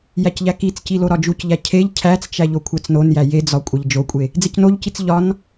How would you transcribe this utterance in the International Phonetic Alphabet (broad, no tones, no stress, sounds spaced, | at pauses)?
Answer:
j æ c ʎ æ k i t͡s c i l o ɾ ɒ d͡ʒ u c ʎ æ cʰ e ʎ cʰ æ t͡s t͡ʃ æ ʎ o kʷʰ æ t͡s n o n j æ j e d͡z ɒ kʷʼ æ ʎ d͡ʒ o kʷʼ e | d͡z e c n o ʎ c i t͡s ʎ ɒ n